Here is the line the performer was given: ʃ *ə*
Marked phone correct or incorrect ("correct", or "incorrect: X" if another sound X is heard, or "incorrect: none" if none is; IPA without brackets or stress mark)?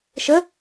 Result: correct